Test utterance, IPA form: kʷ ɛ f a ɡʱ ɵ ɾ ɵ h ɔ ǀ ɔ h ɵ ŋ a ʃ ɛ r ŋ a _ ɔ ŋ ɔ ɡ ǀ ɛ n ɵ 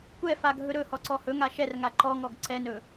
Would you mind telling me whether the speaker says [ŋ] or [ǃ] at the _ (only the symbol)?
ǃ